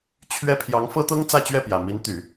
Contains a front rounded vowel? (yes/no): yes